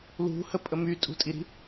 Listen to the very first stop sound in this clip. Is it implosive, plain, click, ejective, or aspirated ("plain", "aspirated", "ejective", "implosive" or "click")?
ejective